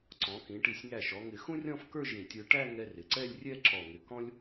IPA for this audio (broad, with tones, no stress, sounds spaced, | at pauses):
ǀ ɔ̃˩˧ k ĩ˩˧ ʈ i˧˩ sʲ ŋ æ˧˩ ʃ ɔ˩˧ ŋ ɪ˧˩ x ũ˥ rʲ ɔ̃˥˧ f k ə˞˥˧ ʒ ĩ˧˩ tʲ ə˞˧ ʈ æ˥˧ ŋ ɛ˧ r ɪ˩˧ ǀ ɛ˥˧ lʲ rʲ ɛ˥˧ ǁ ɔ˧˩ ŋ ɪ˧˩ k ɔ̃˥ lʲ